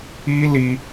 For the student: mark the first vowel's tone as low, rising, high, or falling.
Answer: high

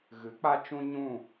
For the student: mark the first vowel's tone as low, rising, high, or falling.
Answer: rising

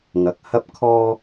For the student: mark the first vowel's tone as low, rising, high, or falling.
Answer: rising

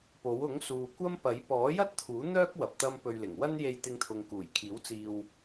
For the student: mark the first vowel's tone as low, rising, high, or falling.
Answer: rising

